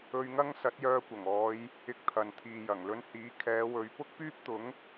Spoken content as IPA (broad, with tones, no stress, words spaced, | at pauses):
ɵ˧ɥŋɐ˥ŋ sɐ˨˥t̚jœː˧kʷɐ˨˩ŋɔː˨˧j | ɪ˧k̚t̪ʰɐ˨n t̪ʰiː˨jɐ˨˩ŋlɵ˧nhiː˨˥ kʰɛː˨˧wɵ˨˧ɥ pʊ˥k̚pyː˥p̚t̪ʊ˨˥ŋ